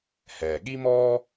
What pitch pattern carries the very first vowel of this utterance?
low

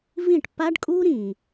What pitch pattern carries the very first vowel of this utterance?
falling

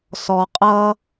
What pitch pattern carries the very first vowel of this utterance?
low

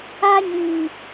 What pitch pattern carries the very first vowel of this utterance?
high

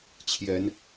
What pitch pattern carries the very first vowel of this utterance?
rising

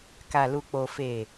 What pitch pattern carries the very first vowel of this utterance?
low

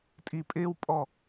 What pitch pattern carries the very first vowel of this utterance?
low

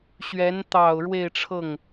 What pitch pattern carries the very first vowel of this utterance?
rising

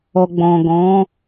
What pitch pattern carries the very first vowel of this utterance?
low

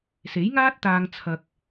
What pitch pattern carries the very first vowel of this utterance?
rising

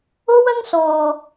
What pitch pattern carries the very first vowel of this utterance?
high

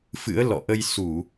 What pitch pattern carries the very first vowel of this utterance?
rising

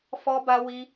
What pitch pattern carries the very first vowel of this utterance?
high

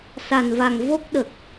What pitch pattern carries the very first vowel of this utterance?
low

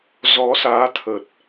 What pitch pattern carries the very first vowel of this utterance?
rising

